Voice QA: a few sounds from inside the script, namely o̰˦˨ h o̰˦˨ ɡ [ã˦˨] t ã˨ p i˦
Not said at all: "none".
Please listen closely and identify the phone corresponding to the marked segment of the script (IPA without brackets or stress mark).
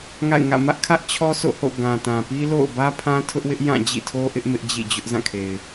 ã˨